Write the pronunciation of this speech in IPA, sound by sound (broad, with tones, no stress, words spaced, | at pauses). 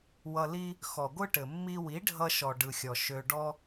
wʌ˧li˦ | xɔ˨ɡʷɯ˦ʈɘ˨ mːi˧ wi˨˦ɖʱʌ˧ʃɔ˨ ɖɯ˨xʲɔ˨ ʃø˧ɖɔ˦